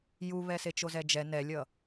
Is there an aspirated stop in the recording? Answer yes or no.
no